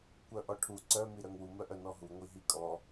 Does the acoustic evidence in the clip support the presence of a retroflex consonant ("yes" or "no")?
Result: yes